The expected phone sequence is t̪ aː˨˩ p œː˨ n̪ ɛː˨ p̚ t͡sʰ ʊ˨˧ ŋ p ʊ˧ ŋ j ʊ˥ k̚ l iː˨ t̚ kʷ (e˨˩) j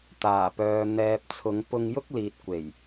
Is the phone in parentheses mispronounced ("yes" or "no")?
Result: no